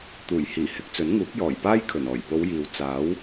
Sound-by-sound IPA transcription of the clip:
t̪uː˨˩jhiː˨˩ hɪ˧k̚t͡sɵ˨˥nŋuː˨˥k̚ jɔː˨˩jpaː˥jkʰɵ˨˩n ɔː˨˩jpo˨˧w jiː˨w t͡saː˨˥w

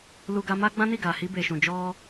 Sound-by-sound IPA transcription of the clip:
lu˧ ɡa˧ma˦ ɡ͡bã˦ni˦˨ɡa˨hi˧ be˨ʃũ˨d͡ʒɔ˧

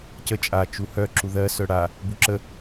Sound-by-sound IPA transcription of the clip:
cə t͡ʃʼat͡ʃu hœ ǁuðɜ sœɽa | buǁə

